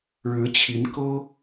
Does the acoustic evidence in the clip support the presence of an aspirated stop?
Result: yes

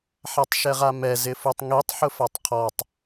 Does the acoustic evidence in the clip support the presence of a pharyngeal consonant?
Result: yes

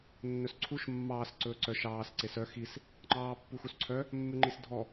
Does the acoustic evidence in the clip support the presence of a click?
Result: yes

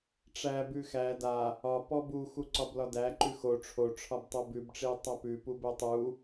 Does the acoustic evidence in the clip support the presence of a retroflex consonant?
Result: yes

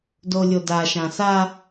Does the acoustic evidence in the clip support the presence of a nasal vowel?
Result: yes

